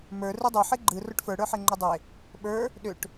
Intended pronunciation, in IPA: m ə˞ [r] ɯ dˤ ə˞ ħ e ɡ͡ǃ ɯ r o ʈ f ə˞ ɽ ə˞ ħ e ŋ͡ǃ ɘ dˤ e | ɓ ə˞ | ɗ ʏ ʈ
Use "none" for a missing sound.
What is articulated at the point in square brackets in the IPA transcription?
r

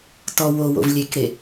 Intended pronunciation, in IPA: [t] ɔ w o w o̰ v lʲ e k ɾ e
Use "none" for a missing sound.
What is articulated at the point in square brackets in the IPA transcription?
t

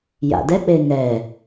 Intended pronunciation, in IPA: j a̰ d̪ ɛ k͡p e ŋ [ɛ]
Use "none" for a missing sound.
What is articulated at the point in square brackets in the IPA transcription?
ɛ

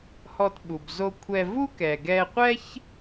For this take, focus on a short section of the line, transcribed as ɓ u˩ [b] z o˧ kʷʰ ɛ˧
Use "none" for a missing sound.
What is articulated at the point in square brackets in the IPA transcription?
b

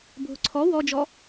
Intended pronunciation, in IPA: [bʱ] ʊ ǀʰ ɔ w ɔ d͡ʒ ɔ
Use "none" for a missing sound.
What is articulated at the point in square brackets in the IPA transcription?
bʱ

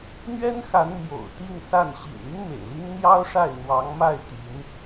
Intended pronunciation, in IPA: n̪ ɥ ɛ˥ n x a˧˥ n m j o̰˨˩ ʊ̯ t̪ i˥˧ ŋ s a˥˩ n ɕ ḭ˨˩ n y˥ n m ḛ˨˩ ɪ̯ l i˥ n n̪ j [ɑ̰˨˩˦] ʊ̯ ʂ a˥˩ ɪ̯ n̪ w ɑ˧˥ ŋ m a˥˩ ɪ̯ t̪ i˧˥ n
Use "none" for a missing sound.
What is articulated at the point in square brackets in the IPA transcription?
ɑ˥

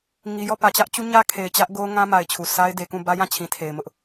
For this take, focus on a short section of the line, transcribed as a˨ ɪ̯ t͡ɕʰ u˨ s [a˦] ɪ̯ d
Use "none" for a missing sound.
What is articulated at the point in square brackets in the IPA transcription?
a˦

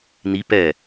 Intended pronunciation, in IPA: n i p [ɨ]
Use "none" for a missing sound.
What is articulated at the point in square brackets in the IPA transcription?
ɛ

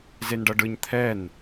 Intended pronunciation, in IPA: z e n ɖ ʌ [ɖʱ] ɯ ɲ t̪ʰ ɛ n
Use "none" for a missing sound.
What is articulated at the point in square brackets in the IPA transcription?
ɖ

